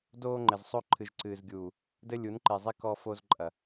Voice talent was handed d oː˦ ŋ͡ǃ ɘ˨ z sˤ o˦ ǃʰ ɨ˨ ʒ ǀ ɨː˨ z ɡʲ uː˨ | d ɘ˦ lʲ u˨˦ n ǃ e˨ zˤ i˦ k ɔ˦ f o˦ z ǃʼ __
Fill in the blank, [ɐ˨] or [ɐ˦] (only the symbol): ɐ˨